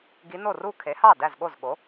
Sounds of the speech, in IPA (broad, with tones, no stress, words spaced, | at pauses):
ɡi˧˥no˥˩ ru˥˧kʰe˩˥hɑ˥˩ dæ˥˩zɠo˥˩zɠo˩˥